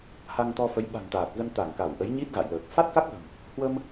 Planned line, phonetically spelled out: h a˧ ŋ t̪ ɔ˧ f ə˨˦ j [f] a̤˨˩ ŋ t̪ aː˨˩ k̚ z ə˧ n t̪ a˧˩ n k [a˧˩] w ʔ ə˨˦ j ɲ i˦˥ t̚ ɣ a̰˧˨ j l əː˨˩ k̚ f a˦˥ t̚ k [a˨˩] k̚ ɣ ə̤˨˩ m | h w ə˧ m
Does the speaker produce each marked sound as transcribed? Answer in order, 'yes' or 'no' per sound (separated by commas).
no, yes, no